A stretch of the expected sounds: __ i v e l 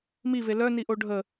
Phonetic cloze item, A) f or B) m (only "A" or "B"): B